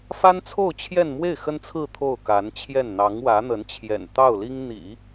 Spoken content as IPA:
f a˥ n t͡sʰ o˥˧ ʊ̯ t͡ɕʰ j ɛ˥˧ n m w e˥˩ ɪ̯ x ə˥ n t͡sʰ ɹ̩˥˧ t̪ʰ o˥˩ ʊ̯ k a˧˥ n t͡ɕʰ j ɛ˥˩ n n̪ ɑ˧˥ ŋ w ä˧˥ n̪ ə˧˥ n t͡ɕʰ j ɛ̰˨˩ n t̪ ɑ˥˩ ʊ̯ l i˥ ŋ n̪ ḭ˨˩˦

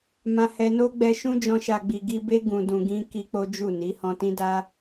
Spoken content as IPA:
m ã˧ h ɛ˧ n o˦ ɡ͡b ɛ˧ ʃ ũ˦ d͡ʒ ɔ̃˧ ʃ a˨ ɡ͡b i˨ ɡ i˧ b e˦ ɡ ũ˧ d ũ˧ ɡ ĩ˦ k i˦ k͡p o˦ d͡ʒ u˦˨ n i˨˦ h ɔ̃˧ t ĩ˦ d a˦

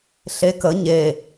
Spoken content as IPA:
ɬ e k ə ɲ e

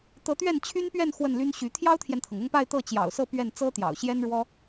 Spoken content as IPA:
t̪ ɤ˧˥ t̪ ɥ ɛ˥˩ n t͡ɕʰ y˥ n p ɥ ɛ˥˧ n x w ə˥˩ n l y˥ n ɕ y˧˥ t̪ʰ j ɑ˥ ʊ̯ t̪ʰ j ɛ˨ n t̪ʰ ɤ˩ ŋ ʊ˥˧ ŋ p a˥˧ ɪ̯ t̪ ɤ˥˩ t͡ɕ j ɑ̰˨˩ ʊ̯ s ɤ˥˧ p ɥ ɛ˥˩ n t͡s ɤ˥ t̪ j ɑ̰˨˩ ʊ̯ ɕ j ɛ˥ n ɻ w ɔ˥

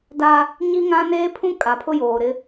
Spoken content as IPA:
d a˦ | ɲ i˦ ŋ ã˦ n eː˦ pʰ ũ˦ kʼ a˨ pʰ ʊ˦ j oː˨ ɾ ɪ˦

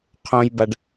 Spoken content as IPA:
qʰ õ j b a ɖ

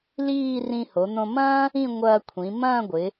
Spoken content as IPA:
l iː˥˧ r ĩ˧ h o˩˧ n̪ õ˧ m ɐ̃ː˥ | ĩ˥˧ ŋʷ ɐː˧ kʷʰ ĩ˩˧ m ɐ̃ː˥˧ ɡʷ ɪ˩˧

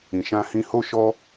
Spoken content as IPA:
ĩ˨ ʃ ã˧ h ĩ˧ h o˦ ʃ ɔ˦

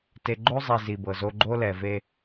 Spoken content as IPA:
t e˨ ɡ͡ǃ o˦ zˤ i˨ z i˨ b ɤ˨ z o˦ ɡ͡ǃ o˦ l ɛ˨ v e˦

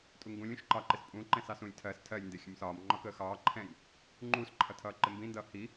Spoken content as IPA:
tʼ u ŋ ɡ ũ lʲ ũ ʃ ǃ ɑ ǃ ɪ s pʼ ũ ǃ ɛ̃ s ɑ s ũ lʲ tʰ ɜ s tʰ ɜ lʲ n d ɪ xʲ ə̃ m s ɒː m ŋ͡ǃ ɒ k əː x ɑː ǃʰ ɛ̃ lʲ | ŋ͡ǃ uː s ǃʰ ʌ tʰ ʌː ǃ ɪ m b ĩ n d ʌː h i

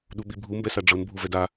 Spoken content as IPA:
ɗ u ɓ i bʱ u m b ɛ s a ɖ͡ʐ ɤ n bʱ u v ɛ d a

